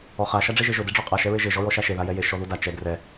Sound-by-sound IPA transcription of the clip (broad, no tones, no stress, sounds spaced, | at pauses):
ɔ χ a ʃ a ɖ͡ʐ e ʒ e ʒ ʊ d e ɖ͡ʐ ɔ qʼ a ʃ ɛ ɹ e ʒ e ʒ ɔ ɹ ɔ ʃ a ʃ e ð a j ɛ j e ʃ ɔ ð u d a t͡ʃ ɛ d r ɛ